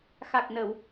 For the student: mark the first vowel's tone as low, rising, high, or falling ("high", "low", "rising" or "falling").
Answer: low